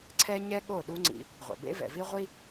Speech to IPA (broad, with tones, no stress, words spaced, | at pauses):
ǀʰɛ˦ɲɛ˦ ɠo˦˨ɗu˦ŋ͡ǀḭ˧ | ʁʷɛ̰˨bḛ˦ vɛ̰˨vi˦ ʁʷi˦